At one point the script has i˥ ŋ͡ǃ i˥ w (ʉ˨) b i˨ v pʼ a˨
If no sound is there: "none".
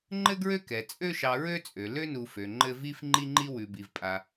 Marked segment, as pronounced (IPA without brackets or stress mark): ʉ˨